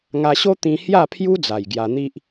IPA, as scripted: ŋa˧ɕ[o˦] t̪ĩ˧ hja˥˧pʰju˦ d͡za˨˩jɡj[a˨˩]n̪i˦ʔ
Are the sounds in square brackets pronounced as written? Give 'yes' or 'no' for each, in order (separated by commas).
yes, no